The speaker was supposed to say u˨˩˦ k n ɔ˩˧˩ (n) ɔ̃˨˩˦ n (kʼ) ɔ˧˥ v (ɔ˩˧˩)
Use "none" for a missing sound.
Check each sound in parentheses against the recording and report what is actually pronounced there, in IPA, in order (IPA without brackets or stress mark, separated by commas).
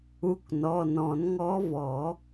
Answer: n, ŋ, ɔ˨˩˦